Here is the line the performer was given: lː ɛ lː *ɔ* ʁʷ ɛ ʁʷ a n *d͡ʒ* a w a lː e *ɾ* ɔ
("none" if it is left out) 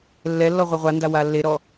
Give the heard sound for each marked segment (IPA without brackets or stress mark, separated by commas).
ɔ, d, ɾ